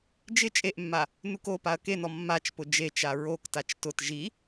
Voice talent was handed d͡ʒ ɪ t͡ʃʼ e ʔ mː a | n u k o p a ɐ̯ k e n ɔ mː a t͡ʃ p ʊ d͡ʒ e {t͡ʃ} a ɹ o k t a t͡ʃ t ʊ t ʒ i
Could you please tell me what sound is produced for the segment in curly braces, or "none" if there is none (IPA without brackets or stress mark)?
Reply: t͡ʃ